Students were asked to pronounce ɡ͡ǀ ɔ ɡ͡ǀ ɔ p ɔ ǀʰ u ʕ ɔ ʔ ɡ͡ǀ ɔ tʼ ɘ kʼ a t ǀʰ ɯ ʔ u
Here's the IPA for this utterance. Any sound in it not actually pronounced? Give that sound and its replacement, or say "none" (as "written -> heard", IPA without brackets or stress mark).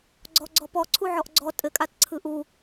none